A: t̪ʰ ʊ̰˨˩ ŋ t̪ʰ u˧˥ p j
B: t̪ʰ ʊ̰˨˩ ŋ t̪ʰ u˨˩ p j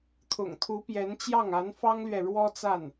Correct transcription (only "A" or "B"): A